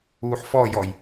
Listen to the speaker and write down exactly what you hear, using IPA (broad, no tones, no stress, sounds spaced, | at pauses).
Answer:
uː ħ f ɔ j ɔ j